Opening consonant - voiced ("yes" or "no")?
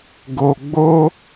yes